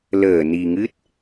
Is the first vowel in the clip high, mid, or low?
mid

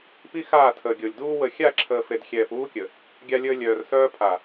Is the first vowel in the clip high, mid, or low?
high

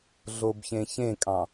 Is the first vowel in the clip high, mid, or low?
mid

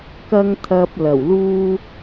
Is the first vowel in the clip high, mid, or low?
low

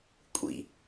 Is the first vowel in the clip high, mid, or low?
high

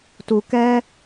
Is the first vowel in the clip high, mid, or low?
high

